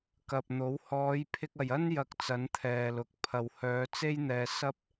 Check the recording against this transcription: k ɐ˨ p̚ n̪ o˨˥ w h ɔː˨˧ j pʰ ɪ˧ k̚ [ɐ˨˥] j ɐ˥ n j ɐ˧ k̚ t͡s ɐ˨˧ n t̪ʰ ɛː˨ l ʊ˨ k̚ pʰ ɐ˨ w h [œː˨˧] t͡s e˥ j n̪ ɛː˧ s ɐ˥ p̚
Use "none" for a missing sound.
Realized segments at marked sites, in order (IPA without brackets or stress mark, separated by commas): ɐ˨, œː˨˧